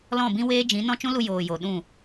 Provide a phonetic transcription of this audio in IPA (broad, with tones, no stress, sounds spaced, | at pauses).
l ɔ̃˦˨ b ĩ˦ w eː˦ d͡ʒ ĩ˨˦ n ɔ̃˦ t͡ʃ ũ˦ l u˧ j oː˨ j o˨ ɗ ũ˦˨